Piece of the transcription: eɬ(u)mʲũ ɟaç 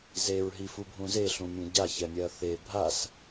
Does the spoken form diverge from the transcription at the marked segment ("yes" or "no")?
yes